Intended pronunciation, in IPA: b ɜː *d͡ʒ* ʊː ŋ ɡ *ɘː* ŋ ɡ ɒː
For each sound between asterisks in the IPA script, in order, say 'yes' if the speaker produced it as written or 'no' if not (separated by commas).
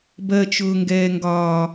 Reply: no, no